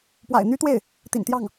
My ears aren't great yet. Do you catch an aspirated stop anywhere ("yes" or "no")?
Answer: no